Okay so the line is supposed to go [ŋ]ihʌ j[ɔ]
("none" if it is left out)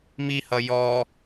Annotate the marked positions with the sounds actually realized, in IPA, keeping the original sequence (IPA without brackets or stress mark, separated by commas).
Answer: m, ɔ